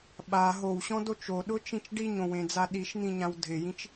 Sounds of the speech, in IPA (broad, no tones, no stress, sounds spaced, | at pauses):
ɓ a ɦ o w ɕ ɔ̃ d o t͡ʃ o ɗ ʊ t͡ʃ ĩ t͡ʃ ɖ i ɲ õ w ẽ d͡z a ɗ i ʃ n̪ ĩ ɲ ã w dʱ ɪ j ĩ t͡ʃ